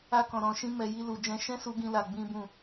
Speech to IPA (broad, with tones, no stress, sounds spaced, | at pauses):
a˦ k ɔ̃˧ ɾ ɔ̃˧ ʃ ĩ˦ m ɛ˧ j i˦ l u˧ d͡ʒ ɛ̃˧ ʃ ɛ̃˦ s u˧ ɡ ĩ˦ l a˧ ɡ͡b ĩ˦ b ũ˦˨